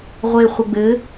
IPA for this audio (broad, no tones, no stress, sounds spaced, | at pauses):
ʁʷ e χʷ ə ɡ͡b ɘ